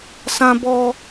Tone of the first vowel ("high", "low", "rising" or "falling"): high